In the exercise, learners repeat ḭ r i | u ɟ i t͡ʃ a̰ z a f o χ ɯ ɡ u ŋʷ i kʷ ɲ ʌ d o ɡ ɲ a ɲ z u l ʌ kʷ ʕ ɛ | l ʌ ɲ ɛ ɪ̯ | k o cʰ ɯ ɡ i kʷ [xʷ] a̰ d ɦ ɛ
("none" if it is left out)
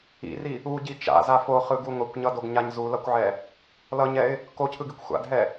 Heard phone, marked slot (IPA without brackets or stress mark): xʷ